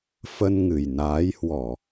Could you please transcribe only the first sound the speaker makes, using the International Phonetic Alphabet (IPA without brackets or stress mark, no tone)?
f